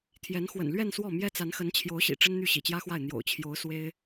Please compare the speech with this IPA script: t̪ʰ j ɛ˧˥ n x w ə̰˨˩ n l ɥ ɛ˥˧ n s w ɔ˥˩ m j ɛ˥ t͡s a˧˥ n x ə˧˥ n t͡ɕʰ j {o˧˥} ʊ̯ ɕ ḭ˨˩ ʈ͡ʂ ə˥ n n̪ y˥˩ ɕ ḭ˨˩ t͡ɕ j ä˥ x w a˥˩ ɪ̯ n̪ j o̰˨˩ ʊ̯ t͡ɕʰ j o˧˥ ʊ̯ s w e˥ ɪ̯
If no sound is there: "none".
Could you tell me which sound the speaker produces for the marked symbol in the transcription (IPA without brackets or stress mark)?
o˧˥